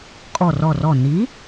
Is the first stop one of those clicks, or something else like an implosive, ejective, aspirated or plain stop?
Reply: ejective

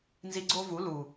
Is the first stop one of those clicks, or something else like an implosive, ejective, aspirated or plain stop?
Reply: click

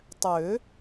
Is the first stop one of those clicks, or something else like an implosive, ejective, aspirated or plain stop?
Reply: plain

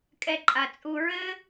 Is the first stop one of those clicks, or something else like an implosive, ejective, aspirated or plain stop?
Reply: ejective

